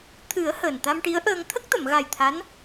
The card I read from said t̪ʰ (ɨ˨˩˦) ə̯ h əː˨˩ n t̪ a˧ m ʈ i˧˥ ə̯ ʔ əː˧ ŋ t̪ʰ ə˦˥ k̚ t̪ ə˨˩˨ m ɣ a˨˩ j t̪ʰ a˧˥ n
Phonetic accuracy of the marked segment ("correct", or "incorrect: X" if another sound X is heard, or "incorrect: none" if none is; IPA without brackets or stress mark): correct